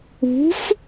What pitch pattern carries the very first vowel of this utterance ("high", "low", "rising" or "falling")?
rising